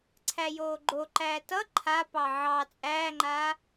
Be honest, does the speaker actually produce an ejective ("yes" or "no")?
yes